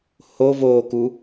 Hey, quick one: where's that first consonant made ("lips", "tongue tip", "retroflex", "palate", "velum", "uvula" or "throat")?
throat